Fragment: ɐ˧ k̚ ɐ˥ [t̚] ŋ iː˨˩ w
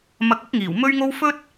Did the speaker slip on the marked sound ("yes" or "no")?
yes